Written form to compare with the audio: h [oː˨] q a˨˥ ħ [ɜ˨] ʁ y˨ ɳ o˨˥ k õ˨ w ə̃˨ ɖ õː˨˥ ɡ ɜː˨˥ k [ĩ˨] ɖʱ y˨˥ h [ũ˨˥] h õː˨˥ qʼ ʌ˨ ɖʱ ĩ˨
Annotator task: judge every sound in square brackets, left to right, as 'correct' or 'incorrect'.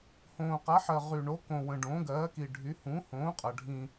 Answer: incorrect: õː˨, correct, incorrect: i˨, correct

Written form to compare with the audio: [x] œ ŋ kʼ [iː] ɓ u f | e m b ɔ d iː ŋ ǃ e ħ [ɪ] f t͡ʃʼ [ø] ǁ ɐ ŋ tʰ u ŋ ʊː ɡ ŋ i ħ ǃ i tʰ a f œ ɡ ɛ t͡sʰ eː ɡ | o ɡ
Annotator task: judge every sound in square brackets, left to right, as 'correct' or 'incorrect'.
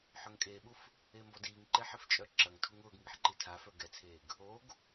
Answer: incorrect: ħ, incorrect: eː, correct, incorrect: œ

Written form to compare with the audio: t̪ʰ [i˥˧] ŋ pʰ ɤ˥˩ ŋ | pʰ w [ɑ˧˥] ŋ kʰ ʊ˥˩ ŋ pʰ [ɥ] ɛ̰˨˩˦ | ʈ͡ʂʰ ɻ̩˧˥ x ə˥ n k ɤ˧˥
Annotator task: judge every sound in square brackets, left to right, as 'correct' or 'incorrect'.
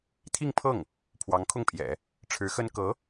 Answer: correct, correct, incorrect: j

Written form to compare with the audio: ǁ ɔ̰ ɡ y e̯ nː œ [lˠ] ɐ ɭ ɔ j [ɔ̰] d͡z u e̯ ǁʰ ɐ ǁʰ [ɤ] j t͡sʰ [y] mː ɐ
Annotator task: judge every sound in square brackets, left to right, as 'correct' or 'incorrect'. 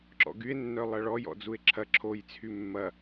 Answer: correct, correct, incorrect: o, correct

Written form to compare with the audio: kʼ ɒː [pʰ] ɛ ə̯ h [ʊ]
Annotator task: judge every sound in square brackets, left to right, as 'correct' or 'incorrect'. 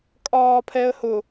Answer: correct, correct

